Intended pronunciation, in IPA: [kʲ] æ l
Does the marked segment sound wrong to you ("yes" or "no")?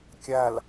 no